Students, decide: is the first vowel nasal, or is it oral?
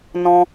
nasal